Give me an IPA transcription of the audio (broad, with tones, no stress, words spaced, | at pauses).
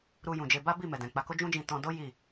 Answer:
ɾu˧jũ˨d͡ʒe˧ ba˦bi˦˨ mɛ˨dɛ̃˨k͡pa˧ko˦ d͡ʒũ˦d͡ʒĩ˧ tɔ̃˧do˦ ji˦˨